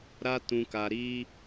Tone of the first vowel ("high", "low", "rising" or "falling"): high